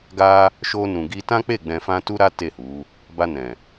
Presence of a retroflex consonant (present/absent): absent